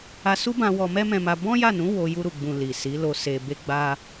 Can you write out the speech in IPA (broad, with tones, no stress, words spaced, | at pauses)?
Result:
a˧ su˦bã˧ wɔ˧ mɛ˦mɛ̃˧ma˧ bɔ̃˦ja˦˨nũ˨˦ wo˧ ju˧ɾu˨ɡ͡bũ˨ li˨si˨˦lo˧ se˨ be˧ɡ͡ba˧